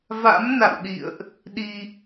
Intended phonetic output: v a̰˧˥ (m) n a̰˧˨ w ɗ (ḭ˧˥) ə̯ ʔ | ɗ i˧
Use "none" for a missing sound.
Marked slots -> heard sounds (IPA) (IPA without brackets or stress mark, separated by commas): m, ḭ˧˨